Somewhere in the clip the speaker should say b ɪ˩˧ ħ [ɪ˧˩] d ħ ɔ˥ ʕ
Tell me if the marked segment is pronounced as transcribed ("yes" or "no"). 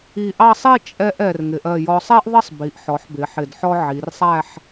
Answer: yes